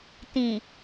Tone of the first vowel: low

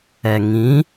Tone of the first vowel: low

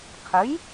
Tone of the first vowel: rising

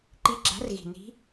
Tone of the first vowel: rising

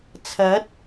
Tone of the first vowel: rising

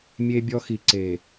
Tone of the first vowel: high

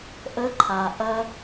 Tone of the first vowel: high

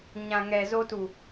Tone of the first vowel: low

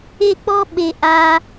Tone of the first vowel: high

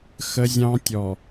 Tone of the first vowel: high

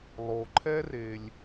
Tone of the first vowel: low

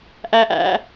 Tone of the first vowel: high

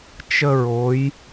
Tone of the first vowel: high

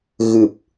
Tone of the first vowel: low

